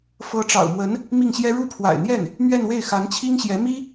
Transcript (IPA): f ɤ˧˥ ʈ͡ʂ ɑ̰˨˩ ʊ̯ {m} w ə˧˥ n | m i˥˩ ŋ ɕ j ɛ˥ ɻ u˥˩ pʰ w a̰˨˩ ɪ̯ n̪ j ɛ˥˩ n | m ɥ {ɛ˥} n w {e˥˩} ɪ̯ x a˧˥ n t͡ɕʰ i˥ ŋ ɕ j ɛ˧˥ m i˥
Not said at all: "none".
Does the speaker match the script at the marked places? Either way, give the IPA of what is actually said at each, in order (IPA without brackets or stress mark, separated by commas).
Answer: m, ɛ˥˧, e˥˩